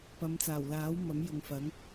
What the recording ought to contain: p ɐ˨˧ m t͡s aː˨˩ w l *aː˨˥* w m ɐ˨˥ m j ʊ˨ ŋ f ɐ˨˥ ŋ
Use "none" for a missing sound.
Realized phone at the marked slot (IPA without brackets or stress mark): aː˨˥